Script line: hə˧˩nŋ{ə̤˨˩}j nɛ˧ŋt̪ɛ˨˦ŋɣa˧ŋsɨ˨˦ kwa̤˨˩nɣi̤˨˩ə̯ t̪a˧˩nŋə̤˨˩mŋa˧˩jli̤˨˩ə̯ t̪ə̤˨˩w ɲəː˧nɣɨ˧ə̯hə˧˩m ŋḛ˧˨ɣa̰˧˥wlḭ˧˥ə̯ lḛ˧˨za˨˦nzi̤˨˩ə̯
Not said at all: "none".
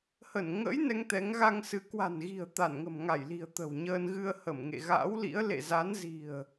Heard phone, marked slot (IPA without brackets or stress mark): ə̰˧˥